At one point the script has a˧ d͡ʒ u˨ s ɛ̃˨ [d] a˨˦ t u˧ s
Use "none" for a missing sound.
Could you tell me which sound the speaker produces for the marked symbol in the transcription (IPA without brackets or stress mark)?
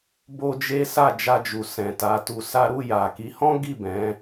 t